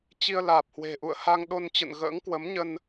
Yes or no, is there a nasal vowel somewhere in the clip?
no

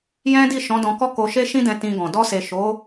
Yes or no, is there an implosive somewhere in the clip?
no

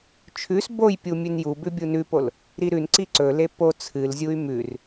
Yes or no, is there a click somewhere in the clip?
yes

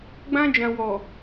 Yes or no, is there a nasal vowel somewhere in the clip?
yes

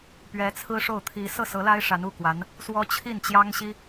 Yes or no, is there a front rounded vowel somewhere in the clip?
no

